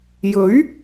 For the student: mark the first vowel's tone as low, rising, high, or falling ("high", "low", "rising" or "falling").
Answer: rising